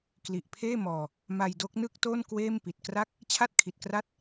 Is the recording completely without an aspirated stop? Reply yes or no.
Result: no